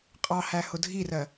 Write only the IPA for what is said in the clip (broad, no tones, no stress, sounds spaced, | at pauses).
qʼ ɑ h æ h ʊ dʱ i r ɜ